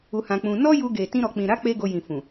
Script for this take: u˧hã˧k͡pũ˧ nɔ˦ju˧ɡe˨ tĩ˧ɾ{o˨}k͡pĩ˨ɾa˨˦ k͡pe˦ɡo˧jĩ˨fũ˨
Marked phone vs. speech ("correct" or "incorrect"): incorrect